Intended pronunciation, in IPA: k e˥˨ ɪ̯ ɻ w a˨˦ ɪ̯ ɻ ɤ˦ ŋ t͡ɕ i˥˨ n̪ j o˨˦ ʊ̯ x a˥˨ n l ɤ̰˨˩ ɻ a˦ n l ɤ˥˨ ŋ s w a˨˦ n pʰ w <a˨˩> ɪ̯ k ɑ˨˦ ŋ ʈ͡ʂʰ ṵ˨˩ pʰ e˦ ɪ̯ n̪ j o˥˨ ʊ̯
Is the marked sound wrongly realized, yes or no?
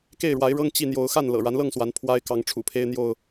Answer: yes